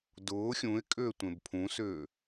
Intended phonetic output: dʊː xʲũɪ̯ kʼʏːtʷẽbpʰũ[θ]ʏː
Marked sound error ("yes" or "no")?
yes